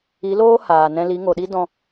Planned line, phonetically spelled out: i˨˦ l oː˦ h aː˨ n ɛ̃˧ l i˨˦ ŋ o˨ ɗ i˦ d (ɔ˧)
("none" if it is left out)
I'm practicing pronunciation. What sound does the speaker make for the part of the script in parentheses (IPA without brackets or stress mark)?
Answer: ɔ̃˧